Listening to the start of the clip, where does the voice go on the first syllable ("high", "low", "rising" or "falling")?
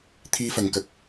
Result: high